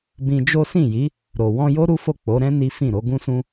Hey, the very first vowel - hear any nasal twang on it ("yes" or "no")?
yes